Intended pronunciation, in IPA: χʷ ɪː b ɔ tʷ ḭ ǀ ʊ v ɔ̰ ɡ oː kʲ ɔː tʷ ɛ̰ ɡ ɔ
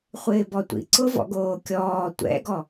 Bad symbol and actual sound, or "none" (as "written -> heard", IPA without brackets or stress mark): none